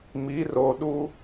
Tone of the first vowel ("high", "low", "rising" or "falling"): rising